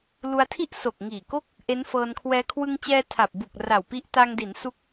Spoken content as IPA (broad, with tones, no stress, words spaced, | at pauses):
lu˧a̯tʰi˥˩ʔ so˨˩k̚ŋiː˨˩ko˥˩k̚ | ʔe˦˥nfɤː˧nkʰwɛː˦˥ kʰwɯ˧ŋt͡ɕɛː˧ tʰa˨˩p̚bu˨˩k̚ ra˨˩wpi˦˥ʔ ta˧ŋdi˩˦n su˦˥k̚